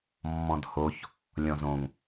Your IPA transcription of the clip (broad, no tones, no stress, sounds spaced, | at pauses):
mː ɔ̃ d h o ç | lʲ ɔ̃ z õ ŋ